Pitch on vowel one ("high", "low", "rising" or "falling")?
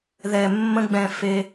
low